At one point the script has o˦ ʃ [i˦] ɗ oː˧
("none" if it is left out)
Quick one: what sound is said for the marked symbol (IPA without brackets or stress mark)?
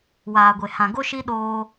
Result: i˦